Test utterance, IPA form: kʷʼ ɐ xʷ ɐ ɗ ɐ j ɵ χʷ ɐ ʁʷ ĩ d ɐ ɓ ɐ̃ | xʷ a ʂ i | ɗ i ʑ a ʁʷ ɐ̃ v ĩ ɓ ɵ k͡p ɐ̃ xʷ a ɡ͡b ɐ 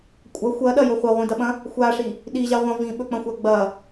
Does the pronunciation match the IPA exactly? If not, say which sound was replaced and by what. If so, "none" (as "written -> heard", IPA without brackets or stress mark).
none